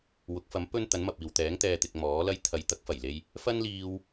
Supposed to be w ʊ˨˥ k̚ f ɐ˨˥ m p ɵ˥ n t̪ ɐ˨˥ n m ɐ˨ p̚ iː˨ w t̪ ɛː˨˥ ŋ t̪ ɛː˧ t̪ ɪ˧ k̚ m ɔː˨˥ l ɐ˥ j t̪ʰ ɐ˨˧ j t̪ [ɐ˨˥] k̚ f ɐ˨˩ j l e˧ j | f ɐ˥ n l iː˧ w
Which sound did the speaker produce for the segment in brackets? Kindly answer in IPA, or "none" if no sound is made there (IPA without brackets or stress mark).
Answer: ɐ˨˥